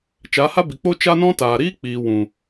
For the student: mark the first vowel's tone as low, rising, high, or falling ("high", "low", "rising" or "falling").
rising